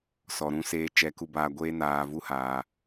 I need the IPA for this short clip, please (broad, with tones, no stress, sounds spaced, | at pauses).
s ɔ˨ ɾ ũ˧ s eː˧ t͡ʃ ɛ˨˦ k u˧ b aː˧ ɡʷ eː˦ n aː˧ v u˦ h aː˧